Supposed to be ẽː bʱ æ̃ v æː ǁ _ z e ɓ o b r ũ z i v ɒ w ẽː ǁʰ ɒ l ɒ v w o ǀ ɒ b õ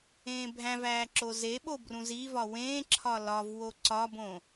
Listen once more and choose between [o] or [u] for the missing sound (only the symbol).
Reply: o